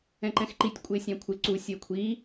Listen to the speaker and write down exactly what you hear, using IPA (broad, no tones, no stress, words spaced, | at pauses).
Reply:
ɛ̃ǃɛ̃xǃitʲ kʷʼɪːsʲɑ̃kʷʰɪ ǀu sʲɜkʷʰi